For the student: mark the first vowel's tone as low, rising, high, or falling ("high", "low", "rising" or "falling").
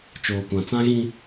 low